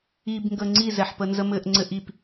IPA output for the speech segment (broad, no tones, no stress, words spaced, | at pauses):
ibŋɡə ŋ͡ǀizɛħ pənzəmɘʔ ŋ͡ǀɘʔip